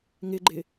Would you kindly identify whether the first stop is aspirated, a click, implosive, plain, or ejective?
click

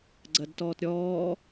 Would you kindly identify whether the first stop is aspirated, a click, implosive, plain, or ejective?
click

